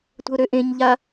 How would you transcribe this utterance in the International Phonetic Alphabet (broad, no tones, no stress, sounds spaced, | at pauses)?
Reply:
tʷ ə̤ ʊ̯ ɾ ø ʔ ẽ ɲ ʎ a